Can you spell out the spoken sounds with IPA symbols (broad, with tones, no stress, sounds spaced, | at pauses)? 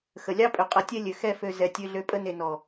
x ə˨ lʲ ɑ˦ pʼ ø˨ qʼ ə˨˦ tʲ ɛ˦ lʲ ø˨ x ɛ˦˨ f ø˧ z ɛ˨ tʲ ø˧ ɮ ø˧ pʼ ə˦ n e˧ n ɔ˨